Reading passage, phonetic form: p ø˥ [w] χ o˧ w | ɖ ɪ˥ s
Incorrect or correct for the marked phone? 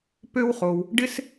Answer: correct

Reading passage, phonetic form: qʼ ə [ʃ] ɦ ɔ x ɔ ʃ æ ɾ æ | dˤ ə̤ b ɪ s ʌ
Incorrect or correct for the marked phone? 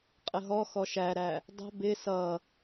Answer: incorrect: none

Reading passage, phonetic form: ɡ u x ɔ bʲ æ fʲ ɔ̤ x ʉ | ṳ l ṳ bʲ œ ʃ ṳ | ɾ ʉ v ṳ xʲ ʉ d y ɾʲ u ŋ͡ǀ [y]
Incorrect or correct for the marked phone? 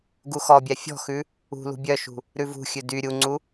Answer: incorrect: u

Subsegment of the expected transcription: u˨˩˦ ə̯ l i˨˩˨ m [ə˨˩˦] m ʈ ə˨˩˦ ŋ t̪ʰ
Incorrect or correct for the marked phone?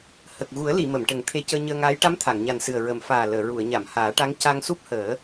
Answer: incorrect: ə˨˩˨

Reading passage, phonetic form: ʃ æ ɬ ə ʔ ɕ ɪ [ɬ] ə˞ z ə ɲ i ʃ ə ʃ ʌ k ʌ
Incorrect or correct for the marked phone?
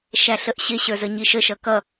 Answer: incorrect: ɕ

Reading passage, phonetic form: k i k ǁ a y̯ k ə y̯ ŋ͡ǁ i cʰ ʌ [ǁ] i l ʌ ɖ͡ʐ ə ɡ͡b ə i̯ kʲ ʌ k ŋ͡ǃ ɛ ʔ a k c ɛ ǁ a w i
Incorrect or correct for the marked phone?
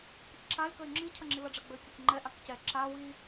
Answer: incorrect: ŋ͡ǁ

